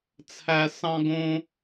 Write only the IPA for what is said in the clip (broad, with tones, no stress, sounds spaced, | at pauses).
t͡sʰ æ˨ s ɑ̃˧ ɡ õ˧